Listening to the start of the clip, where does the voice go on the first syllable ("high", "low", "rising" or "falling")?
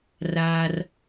low